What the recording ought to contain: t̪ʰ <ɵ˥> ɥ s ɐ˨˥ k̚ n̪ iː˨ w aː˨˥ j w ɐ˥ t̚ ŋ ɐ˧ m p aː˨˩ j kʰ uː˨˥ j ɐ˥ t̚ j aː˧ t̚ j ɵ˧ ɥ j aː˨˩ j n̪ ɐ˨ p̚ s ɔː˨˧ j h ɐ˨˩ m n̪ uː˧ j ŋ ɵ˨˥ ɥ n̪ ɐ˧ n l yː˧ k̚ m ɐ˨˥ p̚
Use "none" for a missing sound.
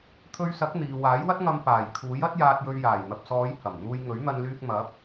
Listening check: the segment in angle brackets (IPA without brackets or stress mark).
ɵ˧